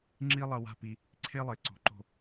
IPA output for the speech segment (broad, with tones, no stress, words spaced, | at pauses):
ŋ͡ǁi˥lˠɐ˧wa̤˥˧pi˧ | ǀʰe˥lˠe˩˧ ǀo̤˩˧ǃo̤˧˩